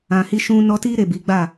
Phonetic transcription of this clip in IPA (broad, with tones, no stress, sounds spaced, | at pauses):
ã˨ h i˧ ʃ ũ˧ n ɔ˧ t i˦ ɾ e˦˨ b i˨˦ ɡ͡b a˦˨